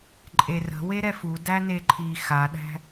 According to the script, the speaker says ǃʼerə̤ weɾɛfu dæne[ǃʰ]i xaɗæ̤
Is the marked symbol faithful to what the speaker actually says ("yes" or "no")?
yes